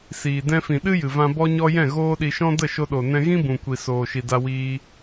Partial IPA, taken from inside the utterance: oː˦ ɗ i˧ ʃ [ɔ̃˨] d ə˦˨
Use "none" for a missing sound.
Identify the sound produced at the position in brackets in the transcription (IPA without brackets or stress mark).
ɔ̃˦